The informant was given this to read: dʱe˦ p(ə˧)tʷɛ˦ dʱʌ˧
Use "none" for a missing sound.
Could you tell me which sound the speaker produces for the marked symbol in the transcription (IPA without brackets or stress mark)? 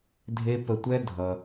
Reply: ə˧